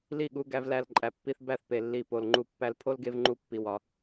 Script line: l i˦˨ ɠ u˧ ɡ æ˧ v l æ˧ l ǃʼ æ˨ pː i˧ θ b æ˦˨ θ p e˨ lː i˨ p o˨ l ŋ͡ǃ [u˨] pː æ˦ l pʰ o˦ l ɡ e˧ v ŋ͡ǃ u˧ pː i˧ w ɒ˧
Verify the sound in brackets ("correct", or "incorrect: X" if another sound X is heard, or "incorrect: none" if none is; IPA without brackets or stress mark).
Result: incorrect: u˧